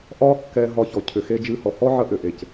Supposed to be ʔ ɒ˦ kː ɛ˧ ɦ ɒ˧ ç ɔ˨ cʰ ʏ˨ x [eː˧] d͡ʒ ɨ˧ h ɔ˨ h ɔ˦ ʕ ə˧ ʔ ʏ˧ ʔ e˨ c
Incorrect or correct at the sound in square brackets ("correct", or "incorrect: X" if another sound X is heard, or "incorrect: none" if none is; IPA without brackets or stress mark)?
incorrect: e˧